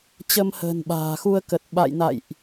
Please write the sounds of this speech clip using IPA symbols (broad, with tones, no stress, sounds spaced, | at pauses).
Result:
t͡ɕ ə˧ m h ə̤ː˨˩ n ɓ a̤ː˨˩ x u˧ ə̯ k ə˨˩ t̚ ɓ a̰˧˨ j n a̰˧˨ j ʔ